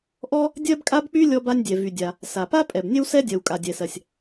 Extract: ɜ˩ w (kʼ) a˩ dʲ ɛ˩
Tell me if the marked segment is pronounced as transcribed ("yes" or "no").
yes